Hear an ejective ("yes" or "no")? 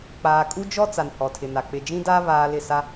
yes